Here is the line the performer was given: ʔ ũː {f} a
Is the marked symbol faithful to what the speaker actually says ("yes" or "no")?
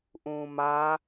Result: no